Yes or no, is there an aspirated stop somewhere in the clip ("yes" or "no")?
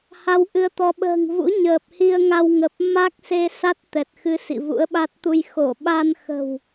no